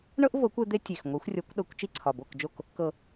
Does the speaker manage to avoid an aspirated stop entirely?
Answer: no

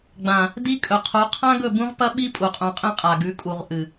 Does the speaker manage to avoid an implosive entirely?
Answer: no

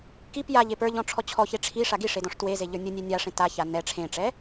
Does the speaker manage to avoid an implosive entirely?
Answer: yes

